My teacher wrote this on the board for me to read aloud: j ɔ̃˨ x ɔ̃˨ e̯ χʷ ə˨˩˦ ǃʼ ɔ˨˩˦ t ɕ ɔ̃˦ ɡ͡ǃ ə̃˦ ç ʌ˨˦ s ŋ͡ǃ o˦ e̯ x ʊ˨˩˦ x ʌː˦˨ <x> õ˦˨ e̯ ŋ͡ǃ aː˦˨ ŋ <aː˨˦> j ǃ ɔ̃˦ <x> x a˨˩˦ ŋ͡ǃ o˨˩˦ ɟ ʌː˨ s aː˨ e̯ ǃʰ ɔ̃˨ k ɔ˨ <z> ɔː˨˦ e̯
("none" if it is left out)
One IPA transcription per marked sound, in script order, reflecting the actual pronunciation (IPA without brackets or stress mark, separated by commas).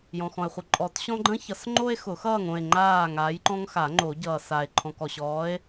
ŋ, aː˨˦, ŋ, ɕ